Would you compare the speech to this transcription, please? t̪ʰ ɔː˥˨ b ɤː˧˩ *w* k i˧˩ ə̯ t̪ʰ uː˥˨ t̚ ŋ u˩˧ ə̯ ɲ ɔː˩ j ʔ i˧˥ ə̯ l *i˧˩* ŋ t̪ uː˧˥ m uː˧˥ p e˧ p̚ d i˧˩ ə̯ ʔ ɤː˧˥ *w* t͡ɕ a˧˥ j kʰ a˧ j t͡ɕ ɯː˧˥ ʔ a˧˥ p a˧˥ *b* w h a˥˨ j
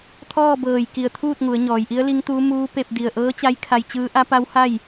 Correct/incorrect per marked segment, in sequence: incorrect: j, incorrect: i˧˥, incorrect: none, incorrect: none

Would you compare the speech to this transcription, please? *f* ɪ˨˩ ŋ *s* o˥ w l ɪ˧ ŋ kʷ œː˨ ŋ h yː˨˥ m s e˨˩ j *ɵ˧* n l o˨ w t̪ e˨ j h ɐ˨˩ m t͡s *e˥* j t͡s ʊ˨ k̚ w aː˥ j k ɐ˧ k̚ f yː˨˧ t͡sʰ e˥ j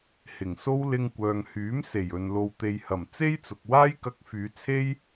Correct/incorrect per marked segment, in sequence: incorrect: h, correct, incorrect: ɵ˨, correct

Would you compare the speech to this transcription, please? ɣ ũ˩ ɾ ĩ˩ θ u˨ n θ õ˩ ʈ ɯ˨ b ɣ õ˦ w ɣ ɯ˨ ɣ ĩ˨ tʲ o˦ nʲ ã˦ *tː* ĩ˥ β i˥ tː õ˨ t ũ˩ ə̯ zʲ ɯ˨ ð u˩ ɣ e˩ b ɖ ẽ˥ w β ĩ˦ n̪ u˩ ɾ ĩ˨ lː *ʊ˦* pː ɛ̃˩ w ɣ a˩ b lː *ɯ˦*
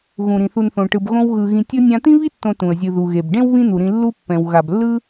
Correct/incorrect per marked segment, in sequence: incorrect: t̪, incorrect: u˦, correct

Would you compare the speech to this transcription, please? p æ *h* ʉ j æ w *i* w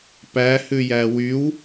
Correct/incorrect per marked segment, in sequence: correct, incorrect: y

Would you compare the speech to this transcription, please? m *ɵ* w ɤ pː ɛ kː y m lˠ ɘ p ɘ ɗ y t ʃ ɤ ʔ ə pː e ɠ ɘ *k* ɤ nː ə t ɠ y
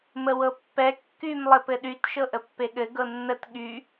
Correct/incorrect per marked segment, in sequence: incorrect: ə, incorrect: ɡ

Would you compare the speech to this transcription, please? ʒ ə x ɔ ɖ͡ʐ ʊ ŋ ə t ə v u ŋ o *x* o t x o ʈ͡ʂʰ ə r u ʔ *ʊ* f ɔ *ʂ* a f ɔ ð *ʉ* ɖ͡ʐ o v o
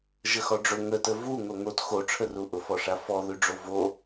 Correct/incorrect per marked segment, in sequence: incorrect: ŋ, correct, correct, correct

